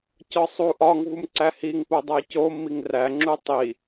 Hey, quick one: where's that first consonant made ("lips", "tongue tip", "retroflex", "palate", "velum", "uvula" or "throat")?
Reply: palate